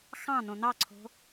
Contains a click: yes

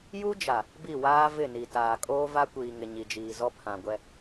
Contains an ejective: yes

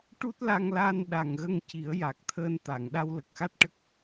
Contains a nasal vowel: no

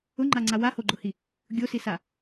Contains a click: yes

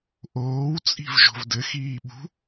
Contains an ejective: yes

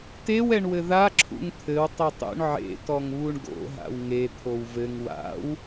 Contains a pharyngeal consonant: yes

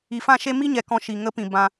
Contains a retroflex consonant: no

